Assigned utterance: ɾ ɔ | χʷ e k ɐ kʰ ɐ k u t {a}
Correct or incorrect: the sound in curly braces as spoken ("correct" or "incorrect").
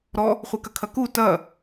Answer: incorrect